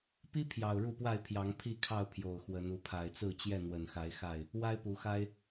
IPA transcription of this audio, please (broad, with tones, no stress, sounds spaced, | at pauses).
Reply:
p i˦ pʰ j ɑ˨˩ ʊ̯ ɻ u˥˨ p w a˥˨ ɪ̯ pʰ j ɑ˨˦ ŋ pʰ i˥˨ kʰ ɑ˥˨ ʊ̯ pʰ j o˨˩ ʊ̯ x w ə˨˦ n u˨˦ pʰ a˨˩ ɪ̯ t͡s ɹ̩˥˨ t͡ɕ j ɛ˥˨ n̪ w ə˨˩ n x a˨˦ ɪ̯ x a˥˨ ɪ̯ | w a˦ ɪ̯ p u˨˦ x a˦ ɪ̯